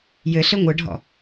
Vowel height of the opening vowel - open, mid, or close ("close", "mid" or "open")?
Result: mid